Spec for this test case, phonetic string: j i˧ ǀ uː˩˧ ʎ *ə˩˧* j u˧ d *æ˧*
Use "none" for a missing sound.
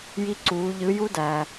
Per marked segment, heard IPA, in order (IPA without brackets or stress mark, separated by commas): ɯ˩˧, æ˩